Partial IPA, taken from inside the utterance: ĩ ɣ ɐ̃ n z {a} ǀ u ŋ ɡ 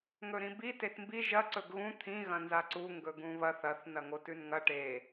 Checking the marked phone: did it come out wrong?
no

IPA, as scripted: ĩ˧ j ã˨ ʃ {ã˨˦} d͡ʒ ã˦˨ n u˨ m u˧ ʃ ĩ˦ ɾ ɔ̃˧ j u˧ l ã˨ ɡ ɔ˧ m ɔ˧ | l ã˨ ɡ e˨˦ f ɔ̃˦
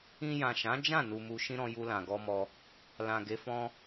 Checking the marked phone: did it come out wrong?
no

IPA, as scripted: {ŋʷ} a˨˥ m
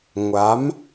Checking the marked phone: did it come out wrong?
no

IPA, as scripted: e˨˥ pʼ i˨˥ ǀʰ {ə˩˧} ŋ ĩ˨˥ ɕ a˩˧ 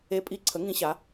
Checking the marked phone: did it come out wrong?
no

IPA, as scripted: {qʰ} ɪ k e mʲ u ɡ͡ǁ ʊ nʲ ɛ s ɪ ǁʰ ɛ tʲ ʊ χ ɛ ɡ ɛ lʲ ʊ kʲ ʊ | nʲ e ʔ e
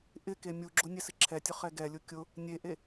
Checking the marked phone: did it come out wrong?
yes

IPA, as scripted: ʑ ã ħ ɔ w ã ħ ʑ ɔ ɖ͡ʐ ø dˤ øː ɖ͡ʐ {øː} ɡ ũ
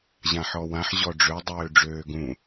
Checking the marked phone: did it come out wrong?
no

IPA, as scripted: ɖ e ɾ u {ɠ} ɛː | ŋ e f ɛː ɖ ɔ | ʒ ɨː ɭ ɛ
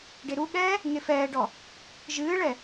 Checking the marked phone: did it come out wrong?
no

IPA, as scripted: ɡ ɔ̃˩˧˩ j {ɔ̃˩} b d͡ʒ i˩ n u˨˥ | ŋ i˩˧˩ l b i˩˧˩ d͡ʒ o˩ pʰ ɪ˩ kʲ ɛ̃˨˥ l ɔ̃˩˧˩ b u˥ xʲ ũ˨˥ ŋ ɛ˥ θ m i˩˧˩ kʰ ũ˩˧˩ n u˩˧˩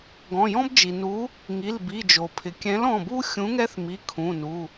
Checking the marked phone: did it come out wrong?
yes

